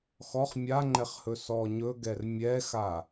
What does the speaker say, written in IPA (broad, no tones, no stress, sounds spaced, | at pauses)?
x ɔ χ mʲ a ŋ͡ǃ ɛ χ h ɵ s ɔ ɲ ɵ ɡ ɛ r mʲ ɛ x a